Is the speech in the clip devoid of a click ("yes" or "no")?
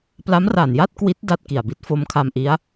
yes